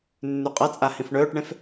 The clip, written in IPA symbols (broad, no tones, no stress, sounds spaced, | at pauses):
nː ʉ qʼ ɐ t͡sʼ a h ĩ f ɳ ɵː ʈ ɳ ẽ f